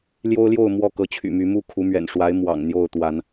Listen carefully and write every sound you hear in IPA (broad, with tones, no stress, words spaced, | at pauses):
ljo˦ʊ̯ljo˥˨ʊ̯ mwɔ˥˨kɤ˨˦t͡ɕʰy̰˨˩my˨˦ mu˥˨kʰu˨˦mɥɛ̰˨˩nʂwa˨˦ɪ̯ mwɑ̰˨˩ŋ n̪jo˥˨ʊ̯t̪wa˨˦n